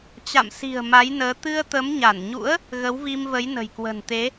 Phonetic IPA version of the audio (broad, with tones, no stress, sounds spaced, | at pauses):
t͡ɕ a̰˧˨ m s i̤˨˩ ə̯ m a˨˦ j n əː˨˦ t̪ ɨ˧ ə̯ t̪ ə˨˦ m ɲ a˧˩ n ɲ ṵ˧˥ ə̯ | ɣ ə˨˦ w v i˧ m v ə˨˦ j n ə̤˨˩ j k w ə̤˨˩ n t̪ e˨˦